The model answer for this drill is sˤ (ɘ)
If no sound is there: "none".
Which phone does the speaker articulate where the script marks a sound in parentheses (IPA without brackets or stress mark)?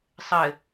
ɘ